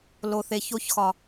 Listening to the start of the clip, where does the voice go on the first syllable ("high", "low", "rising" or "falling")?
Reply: low